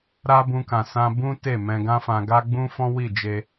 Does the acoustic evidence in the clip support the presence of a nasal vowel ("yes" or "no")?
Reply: yes